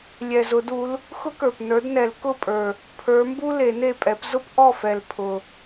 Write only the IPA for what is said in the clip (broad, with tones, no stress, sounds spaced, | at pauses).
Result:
lʲ ɛ˨˩ z ʊ˨˩˦ d u˨˥ l | x ʊ˥ k ə˞˨˩ p n ə˞˨˥ d n ɛ˨˩˦ l k ʊ˥˩ pʼ ə˞˨˩ | pʰ ə˞˨˥ m b u˥ l e˨˩˦ n e˥˩ pʼ ɛ˨˥ p z ʊ˥ p ʔ ɔ˥˩ f ɛ˨˩ l pʰ ʊ˨˩